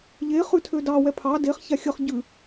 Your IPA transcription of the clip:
ʎe χʉtʰødɑwɛ pʰɑ deχ çaxʲʌχ ɟʉ

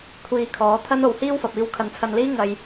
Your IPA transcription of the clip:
kʷʰiː˧kʰɔː˨˥t̪ʰɐ˥n o˨˧whiː˥wfɐ˨p̚iː˧w kʰɐ˨˧nt͡sʰɐ˧nliː˥ ŋɐ˨j

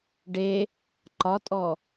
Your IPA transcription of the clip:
ɖe | ǃɒtʼɔ

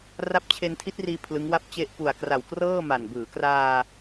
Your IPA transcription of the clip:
ra˦˥p̚t͡ɕʰe˧ntʰi˦˥t̚riː˧ pʰlɯ˦˥ŋwa˥˩p̚t͡ɕe˥˩ʔ pu˨˩a̯kra˨˩wkrɤː˥˩ ma˨˩n bɯː˩˦ kraː˧

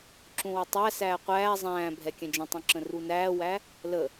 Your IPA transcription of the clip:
ǁũwətˤæsæː qʷæː zˤæ̃ː bʱɛkʲɛ̃d͡ʒə̃tˤũ ǁə̃runæːwæ | lə

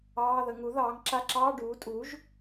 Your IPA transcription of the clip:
ɑː˧˥˧ðə˩˥ ŋu˩˥ðɑː˩˥ŋǁa˧˥˧ǁɑː˧˥˧ ɖuː˩˥tʼu˩˥ʒ

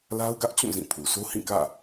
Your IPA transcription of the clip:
la˦ʊ̯ɡä˦ʔt͡ɕũ˦˨ zĩ˦˨pʰu˨ so˦hĩ˦˨kä̰˦˨

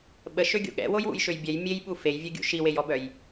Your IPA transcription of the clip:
ɓəʃøɡʲo̰ ɠɛ̰wojwṵjʃøj bʲɛj mʲejɓu fejvʲøɡʲṵ ʃiwejɔbœj

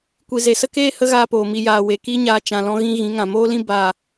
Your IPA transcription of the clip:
kʷi˨ze˨sə˦keː˦ hə˦ɣaː˧poː˨ mi˨jaː˨ we˨ki˦ɲaː˧ t͡ʃã˧lɔ̃˦ɣĩ˦ ɣĩ˨˦ ŋã˨moː˦lĩ˦ ba˦˨

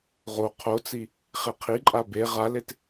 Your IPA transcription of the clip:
ʁo qʰot͡si | χeqʰiǃʼa be ʁalet

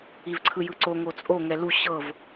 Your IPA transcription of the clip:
ivǀʰɯjɯǀo ŋot͡sʼo ŋɛlu ɕɤv

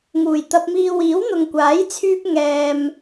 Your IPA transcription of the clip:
ŋuː˨˩jt̪ɐ˧p̚miː˧ wiː˨˥wn̪ʊ˨ŋkʷaː˨˥jt͡sʰyː˧p̚ ŋɛː˨m

